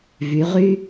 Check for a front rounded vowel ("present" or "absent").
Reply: present